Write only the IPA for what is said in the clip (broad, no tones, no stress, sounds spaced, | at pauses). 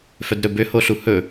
f œ d ɾ ɵ b ø h o ɬ u h ɵ